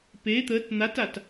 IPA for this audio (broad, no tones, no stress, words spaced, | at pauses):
pe t̪ət n̪atat